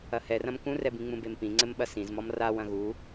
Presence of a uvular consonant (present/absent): absent